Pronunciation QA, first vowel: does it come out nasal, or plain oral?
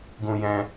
nasal